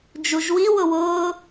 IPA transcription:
d͡ʒuʒwi wʊwʊː

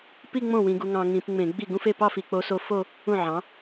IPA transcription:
pi˥˧ŋ͡mõ˥˩ wĩ˧ɡu˧ŋɑ̃˧ ŋĩ˧˩˧pŋ͡mẽ˧˩˧ɡ͡bi˥˩ ɡũ˥˧fe˥˧pɑ˥˧ fi˧k͡po˧˥so˧˥fo˥˧ | ũ˥˩ʕɑ̃˩˥

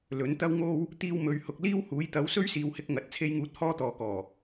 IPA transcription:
lɵ˨˥n t̪ɐ˥wŋo˥w | t̪iː˧wmɵ˨ɥhʊ˨k̚ liː˥whuː˨˥jt̪ɐ˨˥w sɵ˥ɥsiː˨whɪ˧k̚ ŋɐ˨t̚ t͡sʰe˧jŋuː˨˥t̚ hɔː˥t̪ɔː˨kɔː˨˩

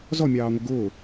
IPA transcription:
zɔmʲɑːŋʷɪ ɡʊː

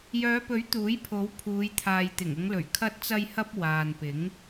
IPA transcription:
jœː˨˧pɵ˨˥ɥ t̪uː˨˥j pʰo˨˥w pʰuː˨˧jt̪ʰaː˨j t̪ɪ˨˩ŋʊ˨˧ŋlɵ˨˩ɥ kʰɐ˧t̚t͡sɐ˧jhɐ˧p̚ waː˨npɪ˨˥ŋ

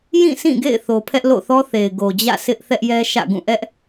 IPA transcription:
jĩ˦˨sʰĩ˦˨ɡḛ˦˨ɪ̯θo˨ pʰɛ˦ʔlo̰˦˨θɔ˦θe˨ɪ̯ ɡo˨d͡ʑä̰˦˨ sʰɪ˦ʔθɛ˦ʔjɛ˦ʃä̰˦˨ ɡũ˦˨ʔɛ˦ʔ

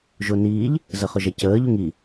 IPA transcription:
ʒʊniːʎ | zəχʊʒɛcəː ʎuŋi

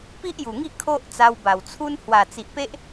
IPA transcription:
pi˦ʔju˨˩ŋi˥˧ kʰo˦ʔ t͡sa˧wba˨˩wt͡sʰu˦n hwa˨˩t͡si˨ʔpe˦ʔ

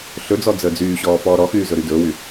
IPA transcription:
ɬɵd͡zɔ d͡zəːd͡zyːɕɔː fɔːɾɔxyː zɵɾydɵːwy

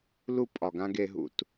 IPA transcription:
lu˦pʼɒ˨ɡã˦ ɡe˦ɦṵ˦˨t

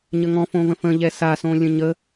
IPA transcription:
ɲəŋɔ̃fõ və̃fə̃ʎɛ sasõ lʲə̃ɲə

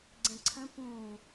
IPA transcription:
ɡ͡ǀɛ̃ǀʰə̃ pũ

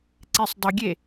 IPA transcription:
ǀesˤdˤʏɡʲe

